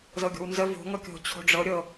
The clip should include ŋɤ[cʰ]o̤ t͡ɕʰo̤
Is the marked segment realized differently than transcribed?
yes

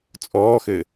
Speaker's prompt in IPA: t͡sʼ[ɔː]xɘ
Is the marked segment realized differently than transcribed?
no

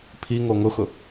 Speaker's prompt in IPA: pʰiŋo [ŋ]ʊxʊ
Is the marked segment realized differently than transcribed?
no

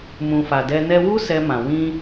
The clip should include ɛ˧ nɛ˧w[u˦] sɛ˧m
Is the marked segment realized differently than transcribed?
no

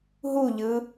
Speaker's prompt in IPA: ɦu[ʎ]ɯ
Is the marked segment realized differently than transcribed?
no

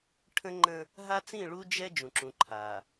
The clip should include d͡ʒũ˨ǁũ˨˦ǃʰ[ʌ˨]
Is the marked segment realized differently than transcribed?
yes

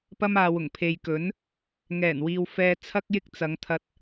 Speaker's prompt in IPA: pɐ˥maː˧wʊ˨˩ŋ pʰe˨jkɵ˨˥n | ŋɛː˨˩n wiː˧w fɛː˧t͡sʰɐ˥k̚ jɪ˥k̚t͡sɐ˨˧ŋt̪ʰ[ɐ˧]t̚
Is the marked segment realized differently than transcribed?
no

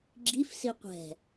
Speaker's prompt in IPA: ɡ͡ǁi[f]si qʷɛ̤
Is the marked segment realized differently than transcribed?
no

